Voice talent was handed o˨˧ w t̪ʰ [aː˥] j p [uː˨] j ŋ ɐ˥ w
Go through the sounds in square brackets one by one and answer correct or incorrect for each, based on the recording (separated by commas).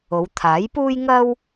incorrect, incorrect